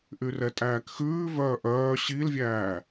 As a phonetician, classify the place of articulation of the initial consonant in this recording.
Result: glottal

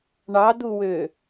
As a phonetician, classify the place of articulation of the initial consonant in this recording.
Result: retroflex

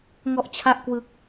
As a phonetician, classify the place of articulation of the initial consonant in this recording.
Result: velar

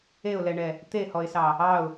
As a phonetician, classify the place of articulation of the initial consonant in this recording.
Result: alveolar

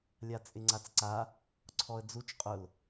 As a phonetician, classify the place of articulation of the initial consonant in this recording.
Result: alveolar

